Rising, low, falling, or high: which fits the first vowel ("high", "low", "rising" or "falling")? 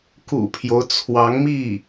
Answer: low